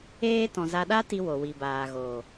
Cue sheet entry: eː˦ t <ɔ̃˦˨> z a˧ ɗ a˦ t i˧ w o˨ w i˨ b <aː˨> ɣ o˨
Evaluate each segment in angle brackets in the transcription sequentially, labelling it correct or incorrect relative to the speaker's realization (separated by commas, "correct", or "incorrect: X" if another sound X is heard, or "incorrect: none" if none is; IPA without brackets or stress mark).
incorrect: ɔ̃˨, correct